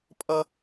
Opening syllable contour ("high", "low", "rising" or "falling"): high